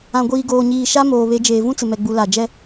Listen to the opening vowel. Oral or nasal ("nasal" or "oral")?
nasal